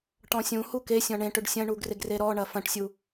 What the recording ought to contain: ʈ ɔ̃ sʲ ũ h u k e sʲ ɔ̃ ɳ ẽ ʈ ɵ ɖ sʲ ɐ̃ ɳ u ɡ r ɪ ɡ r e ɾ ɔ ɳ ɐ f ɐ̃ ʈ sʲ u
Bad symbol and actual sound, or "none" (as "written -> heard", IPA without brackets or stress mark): none